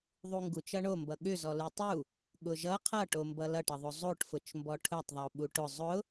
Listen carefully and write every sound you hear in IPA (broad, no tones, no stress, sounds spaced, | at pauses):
ðˤ u ŋ ɡ u t͡ʃ ʌ ɳ o m b ʌ ɠ ʏ z ɔ l u tˤ u | ɠ ʊ ʒ ʌ qʰ ʌ ʈ o m b ʌ l ʌ ʈ ʌ ðˤ o zˤ o ʈ f ʊ t͡ʃ m b ɔ ʈʰ ʊ tˤ ðˤ o ɓ u ʈ ʊ zˤ ʊ